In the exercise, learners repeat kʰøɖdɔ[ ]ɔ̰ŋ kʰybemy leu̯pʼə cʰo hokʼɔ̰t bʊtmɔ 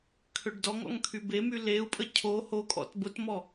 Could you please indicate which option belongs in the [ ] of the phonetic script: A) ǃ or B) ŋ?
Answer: B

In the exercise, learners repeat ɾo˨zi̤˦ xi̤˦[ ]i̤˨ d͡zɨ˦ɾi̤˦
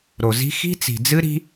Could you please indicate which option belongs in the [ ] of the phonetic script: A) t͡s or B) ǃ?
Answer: A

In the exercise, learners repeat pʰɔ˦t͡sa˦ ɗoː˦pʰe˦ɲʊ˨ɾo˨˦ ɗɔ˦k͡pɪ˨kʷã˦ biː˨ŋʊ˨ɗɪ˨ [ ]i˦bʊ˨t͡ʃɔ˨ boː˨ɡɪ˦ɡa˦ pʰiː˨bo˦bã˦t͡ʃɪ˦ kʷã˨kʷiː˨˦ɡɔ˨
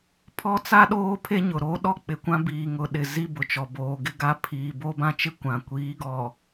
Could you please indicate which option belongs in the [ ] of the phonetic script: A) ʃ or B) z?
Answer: B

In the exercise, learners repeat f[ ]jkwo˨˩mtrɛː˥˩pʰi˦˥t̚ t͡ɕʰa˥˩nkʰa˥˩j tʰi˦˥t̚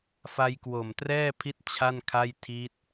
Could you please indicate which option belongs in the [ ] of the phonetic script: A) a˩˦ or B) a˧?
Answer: B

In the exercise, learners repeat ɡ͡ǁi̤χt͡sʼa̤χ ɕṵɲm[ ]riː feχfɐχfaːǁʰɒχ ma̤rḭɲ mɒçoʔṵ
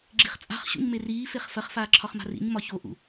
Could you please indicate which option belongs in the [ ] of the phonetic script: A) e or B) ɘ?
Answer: A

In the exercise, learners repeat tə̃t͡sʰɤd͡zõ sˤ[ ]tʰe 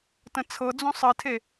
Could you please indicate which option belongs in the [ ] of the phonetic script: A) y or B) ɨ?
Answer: B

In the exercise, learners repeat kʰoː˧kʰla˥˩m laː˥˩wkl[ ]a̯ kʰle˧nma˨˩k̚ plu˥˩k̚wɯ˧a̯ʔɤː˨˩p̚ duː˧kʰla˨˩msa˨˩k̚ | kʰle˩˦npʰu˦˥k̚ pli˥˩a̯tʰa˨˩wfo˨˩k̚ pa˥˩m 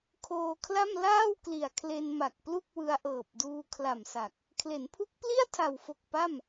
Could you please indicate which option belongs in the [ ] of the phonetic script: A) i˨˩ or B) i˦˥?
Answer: A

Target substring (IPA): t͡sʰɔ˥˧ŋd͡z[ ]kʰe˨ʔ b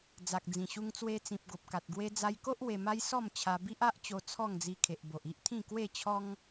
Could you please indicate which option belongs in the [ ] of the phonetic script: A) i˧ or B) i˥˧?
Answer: A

